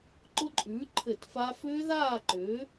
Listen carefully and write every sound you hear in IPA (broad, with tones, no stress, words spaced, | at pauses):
ǃʊ˦˥ǃʼʉː˩˥ ǃʰɘ˧˩˧t fa˦˥ fʏː˦˥ðaː˥˨ǃʏː˩˥